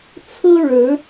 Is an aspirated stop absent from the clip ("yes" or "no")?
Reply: no